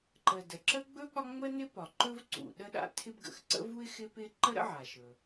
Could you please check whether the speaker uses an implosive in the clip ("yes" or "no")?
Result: yes